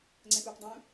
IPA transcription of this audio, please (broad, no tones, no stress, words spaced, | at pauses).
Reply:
ŋ͡ǀɛ̃pupdˤũ